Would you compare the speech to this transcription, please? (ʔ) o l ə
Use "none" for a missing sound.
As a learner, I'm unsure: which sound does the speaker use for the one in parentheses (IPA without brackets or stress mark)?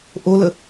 ʔ